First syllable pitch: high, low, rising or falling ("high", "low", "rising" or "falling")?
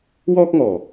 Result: high